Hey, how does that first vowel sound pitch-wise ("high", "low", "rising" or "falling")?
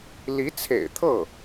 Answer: rising